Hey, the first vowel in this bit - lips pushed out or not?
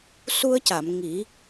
yes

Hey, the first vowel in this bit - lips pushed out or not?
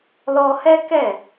yes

